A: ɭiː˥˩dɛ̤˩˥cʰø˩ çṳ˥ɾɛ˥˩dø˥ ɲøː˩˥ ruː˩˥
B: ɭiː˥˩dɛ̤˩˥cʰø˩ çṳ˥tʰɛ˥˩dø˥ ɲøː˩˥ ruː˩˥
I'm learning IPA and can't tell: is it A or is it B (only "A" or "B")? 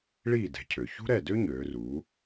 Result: A